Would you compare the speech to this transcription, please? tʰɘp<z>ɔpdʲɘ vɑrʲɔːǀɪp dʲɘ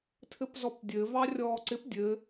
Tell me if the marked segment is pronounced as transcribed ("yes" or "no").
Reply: yes